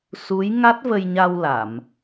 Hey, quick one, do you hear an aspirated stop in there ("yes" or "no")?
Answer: no